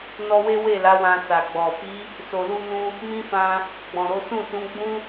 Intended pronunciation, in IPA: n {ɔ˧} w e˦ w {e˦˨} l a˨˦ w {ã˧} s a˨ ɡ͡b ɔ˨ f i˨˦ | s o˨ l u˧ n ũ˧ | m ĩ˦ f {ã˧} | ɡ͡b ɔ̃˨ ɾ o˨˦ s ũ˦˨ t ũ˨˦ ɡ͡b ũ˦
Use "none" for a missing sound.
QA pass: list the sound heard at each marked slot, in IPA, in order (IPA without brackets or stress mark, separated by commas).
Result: ɔ˧, e˦˨, ã˧, ã˧